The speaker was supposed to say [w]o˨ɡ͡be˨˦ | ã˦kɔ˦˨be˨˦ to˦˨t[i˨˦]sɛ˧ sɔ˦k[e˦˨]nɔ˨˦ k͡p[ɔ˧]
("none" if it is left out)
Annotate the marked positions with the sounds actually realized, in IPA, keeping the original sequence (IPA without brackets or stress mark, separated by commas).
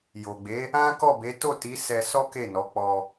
j, i˨˦, e˦˨, ɔ˧